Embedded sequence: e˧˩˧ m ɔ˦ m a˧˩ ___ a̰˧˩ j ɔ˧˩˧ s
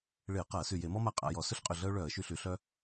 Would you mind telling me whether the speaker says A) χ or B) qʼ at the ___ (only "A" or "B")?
B